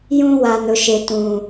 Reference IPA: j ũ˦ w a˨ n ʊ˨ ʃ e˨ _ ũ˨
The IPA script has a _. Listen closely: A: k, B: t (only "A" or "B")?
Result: B